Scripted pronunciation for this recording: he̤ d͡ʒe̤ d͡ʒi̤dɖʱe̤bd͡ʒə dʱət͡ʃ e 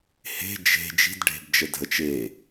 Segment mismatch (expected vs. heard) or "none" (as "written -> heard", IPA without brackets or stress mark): none